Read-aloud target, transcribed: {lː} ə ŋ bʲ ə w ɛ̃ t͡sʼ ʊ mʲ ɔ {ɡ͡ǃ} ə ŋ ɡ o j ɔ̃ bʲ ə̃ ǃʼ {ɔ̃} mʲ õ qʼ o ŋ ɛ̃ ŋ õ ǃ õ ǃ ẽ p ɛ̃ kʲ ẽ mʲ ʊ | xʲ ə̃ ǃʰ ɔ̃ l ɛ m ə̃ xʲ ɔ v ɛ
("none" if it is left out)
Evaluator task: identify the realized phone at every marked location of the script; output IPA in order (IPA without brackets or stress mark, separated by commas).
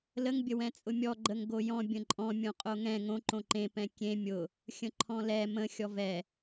l, ɡ͡ǃ, ɔ̃